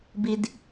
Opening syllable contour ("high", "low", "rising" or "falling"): low